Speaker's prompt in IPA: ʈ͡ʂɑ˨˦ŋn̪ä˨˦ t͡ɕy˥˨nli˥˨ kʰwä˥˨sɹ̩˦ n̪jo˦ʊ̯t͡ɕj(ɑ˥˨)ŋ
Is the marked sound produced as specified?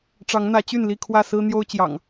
no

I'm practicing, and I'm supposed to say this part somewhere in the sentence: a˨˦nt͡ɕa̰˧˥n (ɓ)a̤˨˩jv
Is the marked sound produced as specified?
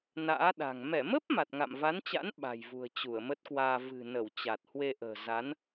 yes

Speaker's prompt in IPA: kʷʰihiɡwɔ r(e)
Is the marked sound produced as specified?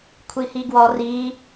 no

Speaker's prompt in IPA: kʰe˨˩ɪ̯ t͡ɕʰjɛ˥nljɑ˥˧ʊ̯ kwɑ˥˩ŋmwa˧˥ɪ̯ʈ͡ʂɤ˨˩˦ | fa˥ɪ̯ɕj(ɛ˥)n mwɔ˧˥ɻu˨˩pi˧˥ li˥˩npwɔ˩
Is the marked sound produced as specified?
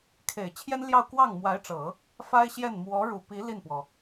no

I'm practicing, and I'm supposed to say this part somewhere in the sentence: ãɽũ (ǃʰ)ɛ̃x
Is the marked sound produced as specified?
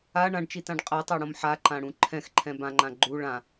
yes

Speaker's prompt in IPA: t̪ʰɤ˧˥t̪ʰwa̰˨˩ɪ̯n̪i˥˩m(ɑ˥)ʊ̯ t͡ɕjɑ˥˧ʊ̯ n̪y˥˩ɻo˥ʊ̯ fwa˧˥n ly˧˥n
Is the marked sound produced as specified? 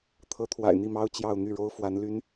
yes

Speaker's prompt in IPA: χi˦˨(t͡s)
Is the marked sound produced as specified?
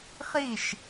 no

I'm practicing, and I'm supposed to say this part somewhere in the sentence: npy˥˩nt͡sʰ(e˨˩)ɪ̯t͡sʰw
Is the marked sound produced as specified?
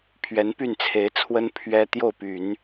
no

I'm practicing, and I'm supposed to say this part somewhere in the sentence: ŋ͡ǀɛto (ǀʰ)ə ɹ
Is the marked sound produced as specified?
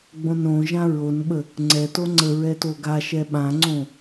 no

